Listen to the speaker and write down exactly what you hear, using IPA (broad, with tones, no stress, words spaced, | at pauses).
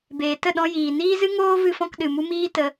beː˨tə˦˨ɗɔ̃˧jiː˨ niː˦zɨ˦ ŋoː˦ vɨ˧fɔ̃˧k ɗɨ˨mu˧ miː˦tə˧